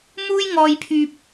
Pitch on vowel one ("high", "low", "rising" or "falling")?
high